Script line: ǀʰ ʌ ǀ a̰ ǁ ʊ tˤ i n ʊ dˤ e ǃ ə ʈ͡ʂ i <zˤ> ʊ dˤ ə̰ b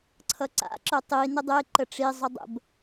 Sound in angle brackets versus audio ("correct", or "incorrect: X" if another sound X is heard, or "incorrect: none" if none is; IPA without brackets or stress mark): correct